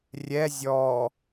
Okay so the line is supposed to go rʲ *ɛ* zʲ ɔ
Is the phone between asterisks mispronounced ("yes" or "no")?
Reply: no